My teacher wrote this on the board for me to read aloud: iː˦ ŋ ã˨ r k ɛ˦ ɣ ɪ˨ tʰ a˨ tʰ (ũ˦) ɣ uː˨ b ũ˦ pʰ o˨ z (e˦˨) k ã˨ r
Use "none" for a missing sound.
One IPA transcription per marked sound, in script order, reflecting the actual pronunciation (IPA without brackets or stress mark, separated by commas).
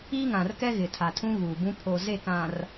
ũ˦, e˦˨